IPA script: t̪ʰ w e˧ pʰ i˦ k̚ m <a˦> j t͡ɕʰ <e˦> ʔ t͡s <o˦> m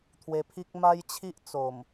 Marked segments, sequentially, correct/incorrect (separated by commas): correct, incorrect, incorrect